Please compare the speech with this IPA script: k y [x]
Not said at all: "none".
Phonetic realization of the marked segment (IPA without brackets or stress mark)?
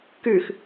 x